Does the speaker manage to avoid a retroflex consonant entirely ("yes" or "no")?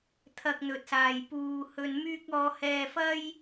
yes